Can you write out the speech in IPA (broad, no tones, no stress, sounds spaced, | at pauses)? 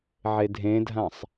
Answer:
ʕ e dʱ ẽ dʱ ã sˤ